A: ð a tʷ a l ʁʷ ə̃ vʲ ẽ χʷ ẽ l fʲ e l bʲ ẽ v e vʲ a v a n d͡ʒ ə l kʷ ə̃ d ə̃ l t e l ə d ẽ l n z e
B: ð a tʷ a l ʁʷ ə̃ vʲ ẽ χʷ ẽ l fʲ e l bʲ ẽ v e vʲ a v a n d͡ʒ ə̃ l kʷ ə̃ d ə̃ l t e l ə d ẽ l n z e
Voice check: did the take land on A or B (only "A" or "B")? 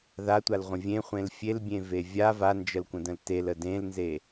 A